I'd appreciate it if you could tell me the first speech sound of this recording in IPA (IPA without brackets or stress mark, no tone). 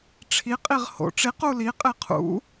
ʈ͡ʂʰ